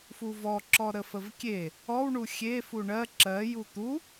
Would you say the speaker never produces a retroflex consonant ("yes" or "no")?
no